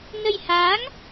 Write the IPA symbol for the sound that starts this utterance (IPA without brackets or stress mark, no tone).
n